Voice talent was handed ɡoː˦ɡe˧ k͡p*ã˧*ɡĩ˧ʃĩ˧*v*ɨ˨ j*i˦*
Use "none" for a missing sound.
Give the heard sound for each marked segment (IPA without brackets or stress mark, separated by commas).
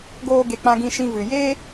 ã˧, v, e˦